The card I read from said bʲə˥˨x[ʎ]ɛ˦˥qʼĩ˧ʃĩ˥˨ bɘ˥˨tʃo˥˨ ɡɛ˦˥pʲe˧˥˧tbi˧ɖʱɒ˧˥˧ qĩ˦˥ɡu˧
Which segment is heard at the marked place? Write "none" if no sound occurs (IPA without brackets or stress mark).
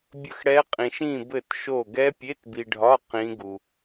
ɽ